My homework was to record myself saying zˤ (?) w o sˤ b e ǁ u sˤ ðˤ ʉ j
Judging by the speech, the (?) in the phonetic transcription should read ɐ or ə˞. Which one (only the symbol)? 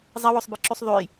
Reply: ɐ